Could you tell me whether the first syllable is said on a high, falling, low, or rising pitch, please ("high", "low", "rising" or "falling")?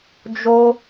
high